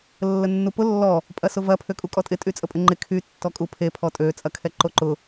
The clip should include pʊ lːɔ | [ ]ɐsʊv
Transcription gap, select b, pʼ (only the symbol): pʼ